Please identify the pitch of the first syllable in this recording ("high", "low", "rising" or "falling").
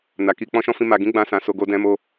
low